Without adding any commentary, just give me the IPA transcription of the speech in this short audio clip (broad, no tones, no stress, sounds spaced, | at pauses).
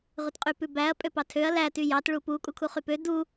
ʁ ʉ t qʼ y p ʉ b æ ɐ̯ pʼ ø p ɑ tʰ ø ɐ̯ l æ t y j ɑ t ɭ u p u kʼ u kʰ u χ y p ø d u